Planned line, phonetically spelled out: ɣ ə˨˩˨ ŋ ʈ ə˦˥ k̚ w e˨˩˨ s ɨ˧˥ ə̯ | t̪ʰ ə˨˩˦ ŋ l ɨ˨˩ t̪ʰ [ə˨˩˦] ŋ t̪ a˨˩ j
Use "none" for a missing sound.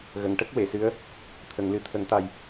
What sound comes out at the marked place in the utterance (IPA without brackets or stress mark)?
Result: ə˨˩˦